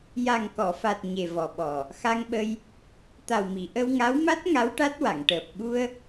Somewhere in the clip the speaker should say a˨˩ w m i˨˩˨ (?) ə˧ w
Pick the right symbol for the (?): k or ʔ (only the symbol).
ʔ